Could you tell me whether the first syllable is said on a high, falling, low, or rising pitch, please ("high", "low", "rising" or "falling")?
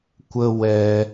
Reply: high